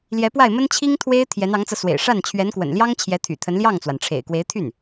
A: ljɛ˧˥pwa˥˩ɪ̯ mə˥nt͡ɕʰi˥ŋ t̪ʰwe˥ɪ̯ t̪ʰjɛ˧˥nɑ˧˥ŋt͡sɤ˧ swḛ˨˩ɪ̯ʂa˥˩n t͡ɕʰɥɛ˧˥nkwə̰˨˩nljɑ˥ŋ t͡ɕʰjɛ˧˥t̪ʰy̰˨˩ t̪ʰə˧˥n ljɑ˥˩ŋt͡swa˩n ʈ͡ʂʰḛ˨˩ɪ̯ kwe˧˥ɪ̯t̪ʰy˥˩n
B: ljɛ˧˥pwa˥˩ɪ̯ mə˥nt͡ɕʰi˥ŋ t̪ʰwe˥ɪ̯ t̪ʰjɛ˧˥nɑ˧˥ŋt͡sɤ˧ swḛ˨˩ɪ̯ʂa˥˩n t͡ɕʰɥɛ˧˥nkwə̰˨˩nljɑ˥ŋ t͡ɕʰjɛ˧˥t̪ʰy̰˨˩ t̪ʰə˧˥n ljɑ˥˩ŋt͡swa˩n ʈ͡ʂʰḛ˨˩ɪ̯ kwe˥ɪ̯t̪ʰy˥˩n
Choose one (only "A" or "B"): A